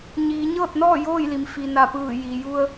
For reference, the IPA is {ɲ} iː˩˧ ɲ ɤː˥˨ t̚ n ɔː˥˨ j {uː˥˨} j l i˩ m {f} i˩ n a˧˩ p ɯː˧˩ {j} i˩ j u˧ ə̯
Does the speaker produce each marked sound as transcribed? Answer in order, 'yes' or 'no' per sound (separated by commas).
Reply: yes, no, yes, yes